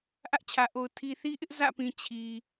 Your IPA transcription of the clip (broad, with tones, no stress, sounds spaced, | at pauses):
ʔ ä˦ ʔ t͡ɕʰ ä˨ ʔ o˨ ʊ̯ tʰ i˨ θ i˦ ʔ ɪ˦ ʔ z ä̰˦˨ p ĩ˨ t͡ɕʰ i˨